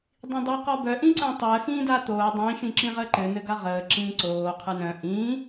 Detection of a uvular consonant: present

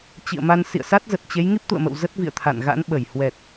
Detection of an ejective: absent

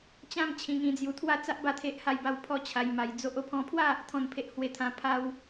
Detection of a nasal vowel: present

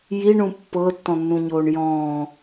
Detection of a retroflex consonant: present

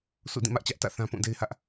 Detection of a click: absent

